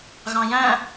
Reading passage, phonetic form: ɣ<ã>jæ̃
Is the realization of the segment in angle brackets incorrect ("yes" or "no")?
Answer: yes